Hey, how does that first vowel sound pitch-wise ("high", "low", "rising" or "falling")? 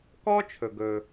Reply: high